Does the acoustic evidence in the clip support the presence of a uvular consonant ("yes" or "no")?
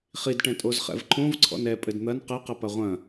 yes